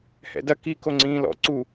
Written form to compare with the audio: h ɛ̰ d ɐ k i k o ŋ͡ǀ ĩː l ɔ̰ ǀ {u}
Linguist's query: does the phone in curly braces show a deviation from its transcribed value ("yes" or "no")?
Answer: no